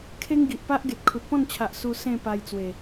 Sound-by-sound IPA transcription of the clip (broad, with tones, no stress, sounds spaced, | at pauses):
kʰ e˦ ŋ ɡ i˨ ʔ p a˦ ʔ ɡ e˨ t̚ kʰ u˨ t̚ p ɔ̃˥˧ n t͡ɕʰ a˨ ʔ s u˧ s ẽ˥˧ p a˧ j t͡s w e˨˩